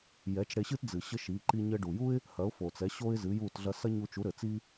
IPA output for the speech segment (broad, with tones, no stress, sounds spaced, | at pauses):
j ɛ˩˥ t͡ʃ ɽ e˧ ɕ ɨ˥ t d͡z ɨ˩ ɕ ɘ˥ ʃ i˩˥ ǃ i˧ ɲ ɘ˧ ɖ u˩ j u˥ ɪ̯ | h ɐ˩˥ ʊ̯ f o˩ t͡s ɛ˩˥ ɕ o˥ ɪ̯ z ɨ˩˥ j u˥˩ t ɮ ɐ˧ s ɐ˥ ɲ u˧ t͡ʃ u˩˥ ɾ ɘ˩ t͡s i˥